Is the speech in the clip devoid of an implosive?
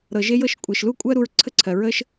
yes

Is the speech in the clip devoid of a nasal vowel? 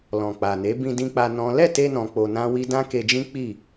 no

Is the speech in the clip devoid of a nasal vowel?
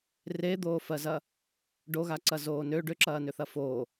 yes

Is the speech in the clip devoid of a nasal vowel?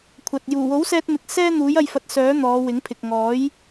yes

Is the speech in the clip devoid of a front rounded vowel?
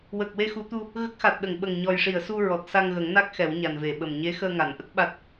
yes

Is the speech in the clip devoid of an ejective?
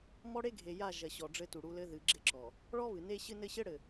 yes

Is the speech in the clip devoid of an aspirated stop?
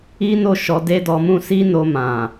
yes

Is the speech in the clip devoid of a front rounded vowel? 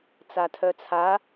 no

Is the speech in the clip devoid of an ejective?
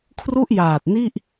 yes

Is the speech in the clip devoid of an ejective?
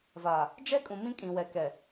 no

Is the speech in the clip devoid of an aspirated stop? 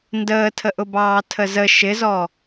no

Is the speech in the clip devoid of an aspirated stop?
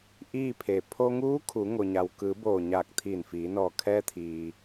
no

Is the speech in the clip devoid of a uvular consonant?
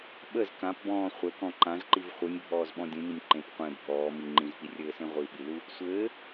no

